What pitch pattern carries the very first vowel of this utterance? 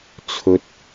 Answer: low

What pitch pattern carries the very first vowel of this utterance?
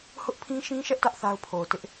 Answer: high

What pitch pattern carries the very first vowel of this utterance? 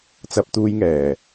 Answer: high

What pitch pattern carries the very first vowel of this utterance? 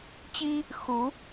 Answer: high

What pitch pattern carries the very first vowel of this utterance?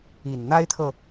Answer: low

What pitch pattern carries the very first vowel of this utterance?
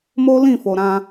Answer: high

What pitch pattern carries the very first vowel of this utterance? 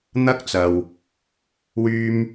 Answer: high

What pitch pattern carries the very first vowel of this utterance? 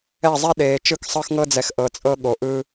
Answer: falling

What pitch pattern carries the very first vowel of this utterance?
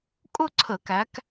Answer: falling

